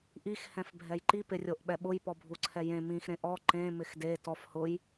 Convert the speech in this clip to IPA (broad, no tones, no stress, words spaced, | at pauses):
ʔix hɛ̃fbʱɛjǃi pɪrʲoʔɓɛɓʊj pɔbʱuǀʰɛjẽ mĩx ɾẽʔɔ ǃẽ mɪxde tɔf hʊj